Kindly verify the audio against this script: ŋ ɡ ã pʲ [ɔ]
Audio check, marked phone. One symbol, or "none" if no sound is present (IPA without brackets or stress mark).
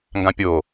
o